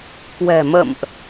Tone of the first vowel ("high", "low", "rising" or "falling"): low